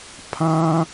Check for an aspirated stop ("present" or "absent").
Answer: present